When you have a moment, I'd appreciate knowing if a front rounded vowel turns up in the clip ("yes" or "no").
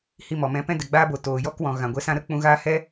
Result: no